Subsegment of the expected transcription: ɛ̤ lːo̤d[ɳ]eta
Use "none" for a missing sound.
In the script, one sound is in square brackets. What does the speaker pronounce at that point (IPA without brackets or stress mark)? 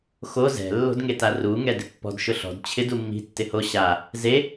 ŋ